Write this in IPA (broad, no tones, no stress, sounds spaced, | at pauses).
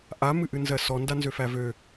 ʔ a m ɨ ʔ ɨ n z ɜ s ɔ n d a n z ø f æ v ø